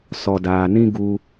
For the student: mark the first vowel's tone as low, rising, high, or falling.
low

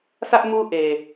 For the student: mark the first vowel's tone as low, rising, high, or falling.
high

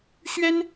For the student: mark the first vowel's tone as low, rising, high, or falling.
high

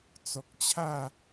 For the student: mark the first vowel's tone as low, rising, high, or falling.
low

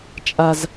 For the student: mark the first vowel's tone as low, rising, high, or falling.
high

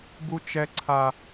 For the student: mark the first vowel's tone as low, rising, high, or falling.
high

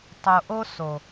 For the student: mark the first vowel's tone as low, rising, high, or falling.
low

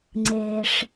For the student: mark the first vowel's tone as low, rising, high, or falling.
low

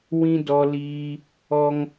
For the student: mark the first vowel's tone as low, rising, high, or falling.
high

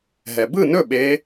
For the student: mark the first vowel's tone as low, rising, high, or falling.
low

